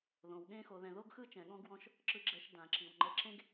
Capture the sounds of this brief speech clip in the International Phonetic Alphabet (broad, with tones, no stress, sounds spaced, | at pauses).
ð õ˩ w ɠ ẽ˦ x o˨ ð ɛ̃˨ ð o˥ ɡ x ɯ˥ t͡ʃ ɛ̃˨ ɠ ɔ̃˥ ɡ w ɔ̃˦ ʃ | ǁ ɯ˨ ɡ͡ǁ ɛ˨ ʃ d ã˩ ǁ i˩ w ŋ͡ǃ ɛ˨ ǁ ẽ˦ ɡ